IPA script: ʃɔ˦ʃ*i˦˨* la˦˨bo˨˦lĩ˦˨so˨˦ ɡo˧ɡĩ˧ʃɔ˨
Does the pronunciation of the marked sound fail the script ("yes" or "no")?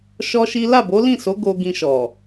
yes